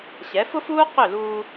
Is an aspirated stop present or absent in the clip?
absent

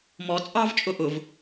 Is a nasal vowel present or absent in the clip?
absent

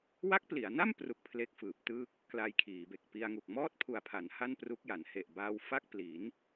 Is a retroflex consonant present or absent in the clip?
absent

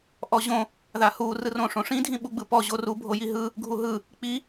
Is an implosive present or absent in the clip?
present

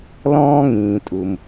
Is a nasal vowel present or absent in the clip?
present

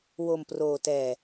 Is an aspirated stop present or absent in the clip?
absent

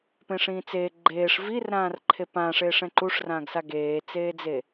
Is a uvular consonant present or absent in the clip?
absent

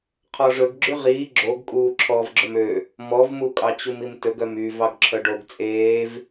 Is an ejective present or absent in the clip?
present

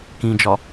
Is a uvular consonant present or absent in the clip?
absent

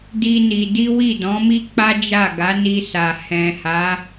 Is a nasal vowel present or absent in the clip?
present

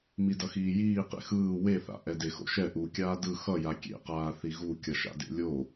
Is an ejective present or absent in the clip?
absent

